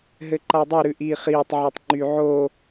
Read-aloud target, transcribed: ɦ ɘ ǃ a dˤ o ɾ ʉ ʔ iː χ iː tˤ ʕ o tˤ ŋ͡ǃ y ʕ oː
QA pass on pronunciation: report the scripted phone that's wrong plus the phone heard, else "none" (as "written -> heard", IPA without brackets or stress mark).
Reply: none